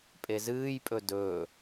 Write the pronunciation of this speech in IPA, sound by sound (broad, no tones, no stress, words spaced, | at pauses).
pʼezɨːjpʼɵ dɵː